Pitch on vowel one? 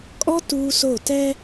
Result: high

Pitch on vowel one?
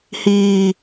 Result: low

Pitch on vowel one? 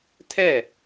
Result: falling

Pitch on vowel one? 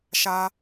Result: high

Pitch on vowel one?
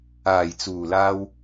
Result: low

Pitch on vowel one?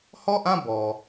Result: falling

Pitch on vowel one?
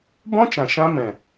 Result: high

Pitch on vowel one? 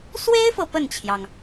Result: high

